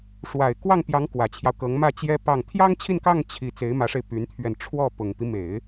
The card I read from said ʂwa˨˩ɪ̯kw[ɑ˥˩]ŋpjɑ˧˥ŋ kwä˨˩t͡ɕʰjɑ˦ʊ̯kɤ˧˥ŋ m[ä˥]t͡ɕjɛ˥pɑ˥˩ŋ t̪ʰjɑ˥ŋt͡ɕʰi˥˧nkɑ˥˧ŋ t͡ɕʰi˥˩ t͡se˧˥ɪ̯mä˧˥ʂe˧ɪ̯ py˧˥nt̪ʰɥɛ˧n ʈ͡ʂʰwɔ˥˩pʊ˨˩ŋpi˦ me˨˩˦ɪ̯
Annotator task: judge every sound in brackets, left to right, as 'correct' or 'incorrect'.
correct, incorrect

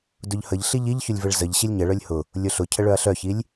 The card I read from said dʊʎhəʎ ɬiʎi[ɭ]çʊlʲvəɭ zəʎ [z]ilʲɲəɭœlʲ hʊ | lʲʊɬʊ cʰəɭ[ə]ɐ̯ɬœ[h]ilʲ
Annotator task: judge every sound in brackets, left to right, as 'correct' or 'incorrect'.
incorrect, incorrect, incorrect, incorrect

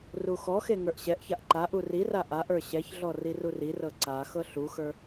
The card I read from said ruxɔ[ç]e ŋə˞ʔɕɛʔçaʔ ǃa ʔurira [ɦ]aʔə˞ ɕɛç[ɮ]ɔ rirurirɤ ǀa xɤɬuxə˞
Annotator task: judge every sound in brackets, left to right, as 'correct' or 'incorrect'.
incorrect, incorrect, correct

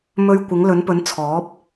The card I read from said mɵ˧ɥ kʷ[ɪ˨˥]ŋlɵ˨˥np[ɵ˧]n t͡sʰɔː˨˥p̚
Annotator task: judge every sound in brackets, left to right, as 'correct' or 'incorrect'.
correct, incorrect

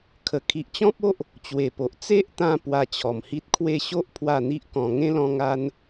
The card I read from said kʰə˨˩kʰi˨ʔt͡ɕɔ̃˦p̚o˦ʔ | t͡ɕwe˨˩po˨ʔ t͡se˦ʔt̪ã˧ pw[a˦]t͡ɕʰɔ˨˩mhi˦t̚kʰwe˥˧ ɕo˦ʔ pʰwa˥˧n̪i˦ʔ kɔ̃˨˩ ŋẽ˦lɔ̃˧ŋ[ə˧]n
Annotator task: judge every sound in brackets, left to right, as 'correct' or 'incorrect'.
incorrect, incorrect

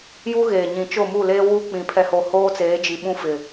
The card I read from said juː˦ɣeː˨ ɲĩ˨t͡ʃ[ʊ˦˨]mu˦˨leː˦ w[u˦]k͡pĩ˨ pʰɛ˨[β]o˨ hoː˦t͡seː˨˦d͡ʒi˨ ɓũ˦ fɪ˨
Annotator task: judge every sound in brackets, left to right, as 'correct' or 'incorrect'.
correct, correct, incorrect

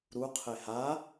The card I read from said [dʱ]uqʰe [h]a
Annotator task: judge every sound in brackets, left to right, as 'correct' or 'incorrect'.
incorrect, correct

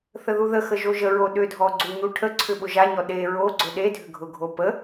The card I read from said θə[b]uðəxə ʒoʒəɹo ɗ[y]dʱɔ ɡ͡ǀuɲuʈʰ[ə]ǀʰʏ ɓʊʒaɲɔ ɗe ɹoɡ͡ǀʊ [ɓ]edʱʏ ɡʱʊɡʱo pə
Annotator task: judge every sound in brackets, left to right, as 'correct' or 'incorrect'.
incorrect, incorrect, correct, incorrect

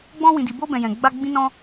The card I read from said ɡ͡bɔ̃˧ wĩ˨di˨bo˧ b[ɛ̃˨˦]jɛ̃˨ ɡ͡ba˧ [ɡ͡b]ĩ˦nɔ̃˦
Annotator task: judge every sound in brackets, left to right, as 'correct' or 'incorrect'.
incorrect, correct

